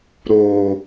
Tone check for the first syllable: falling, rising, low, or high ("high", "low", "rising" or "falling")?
low